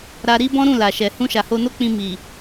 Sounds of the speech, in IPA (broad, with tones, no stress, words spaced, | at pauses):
ɾa˧ɾi˦ bɔ̃˦ɾũ˦˨la˨ʃɛ˨ hũ˧ʃa˨ho˧no˦ k͡pĩ˧mi˨